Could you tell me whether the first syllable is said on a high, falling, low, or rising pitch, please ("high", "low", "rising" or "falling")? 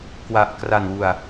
low